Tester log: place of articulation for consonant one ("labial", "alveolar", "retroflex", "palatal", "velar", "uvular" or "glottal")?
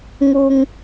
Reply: velar